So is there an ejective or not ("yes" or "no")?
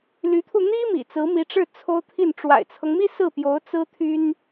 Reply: no